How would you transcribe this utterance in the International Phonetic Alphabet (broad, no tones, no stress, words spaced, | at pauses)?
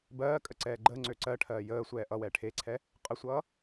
bɜː kʼəǀɛːɡ͡ǃəːŋ͡ǀø ǀɜ ʈʰɜːjəːsʷɛː ʔʌwɛː ʈʰeǀʰɛ | qʼəsʷʌː